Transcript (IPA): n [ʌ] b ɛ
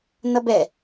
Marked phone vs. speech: correct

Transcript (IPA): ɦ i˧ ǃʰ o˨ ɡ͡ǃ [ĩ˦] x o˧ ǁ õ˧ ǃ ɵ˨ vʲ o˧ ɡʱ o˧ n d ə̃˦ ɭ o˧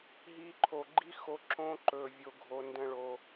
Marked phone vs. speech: incorrect: i˦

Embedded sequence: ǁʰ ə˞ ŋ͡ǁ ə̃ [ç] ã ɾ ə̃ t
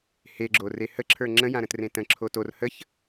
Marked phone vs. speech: incorrect: j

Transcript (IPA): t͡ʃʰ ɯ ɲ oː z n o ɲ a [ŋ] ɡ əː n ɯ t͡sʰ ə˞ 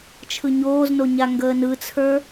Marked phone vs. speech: correct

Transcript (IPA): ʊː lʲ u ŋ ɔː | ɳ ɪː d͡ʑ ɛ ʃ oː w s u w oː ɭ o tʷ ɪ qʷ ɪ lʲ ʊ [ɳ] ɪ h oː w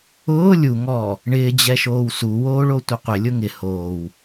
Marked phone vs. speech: incorrect: ŋ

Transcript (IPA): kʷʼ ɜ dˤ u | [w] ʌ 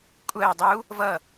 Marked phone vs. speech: incorrect: v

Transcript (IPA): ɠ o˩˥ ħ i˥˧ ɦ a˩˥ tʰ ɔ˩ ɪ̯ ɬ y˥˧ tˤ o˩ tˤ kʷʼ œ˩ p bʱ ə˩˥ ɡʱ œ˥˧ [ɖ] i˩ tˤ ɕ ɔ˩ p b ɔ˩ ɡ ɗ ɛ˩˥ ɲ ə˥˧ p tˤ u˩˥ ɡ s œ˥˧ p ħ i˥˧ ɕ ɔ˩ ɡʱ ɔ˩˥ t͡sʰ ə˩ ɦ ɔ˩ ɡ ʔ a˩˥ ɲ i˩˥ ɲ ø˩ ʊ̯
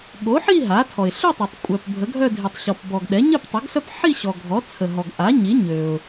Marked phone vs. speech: incorrect: dʱ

